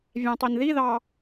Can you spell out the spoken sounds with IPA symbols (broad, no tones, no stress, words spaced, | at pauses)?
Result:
vʲæ̃tˤinðiðɑ